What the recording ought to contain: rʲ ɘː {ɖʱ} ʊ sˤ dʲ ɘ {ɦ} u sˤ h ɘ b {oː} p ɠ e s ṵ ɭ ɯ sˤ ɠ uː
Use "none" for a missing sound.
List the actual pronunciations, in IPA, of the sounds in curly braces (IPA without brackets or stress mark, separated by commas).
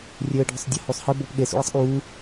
ɖʱ, h, oː